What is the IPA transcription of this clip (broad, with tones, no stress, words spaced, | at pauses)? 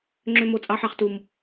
ŋ͡ǁø˦mo˦t͡sʼɑ˦ħɑ˦χ tu˦m